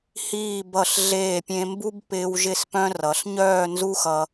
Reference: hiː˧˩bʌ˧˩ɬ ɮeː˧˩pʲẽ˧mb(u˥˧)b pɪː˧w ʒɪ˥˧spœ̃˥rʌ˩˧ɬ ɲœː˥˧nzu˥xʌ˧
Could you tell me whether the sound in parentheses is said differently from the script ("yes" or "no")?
yes